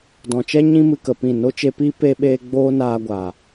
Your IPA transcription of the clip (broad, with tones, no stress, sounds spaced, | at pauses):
d ɔ̃˨ t͡ʃ ɛ˦ ɲ ĩ˦ m ɨ˧ k ə˨ p ĩ˦˨ n o˦ t͡ʃ e˧ p iː˦ p e˧ ɓ eː˧ ɡ͡b oː˦ n aː˧ ɡʷ aː˨